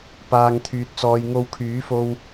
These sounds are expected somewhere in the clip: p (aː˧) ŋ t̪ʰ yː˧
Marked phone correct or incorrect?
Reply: correct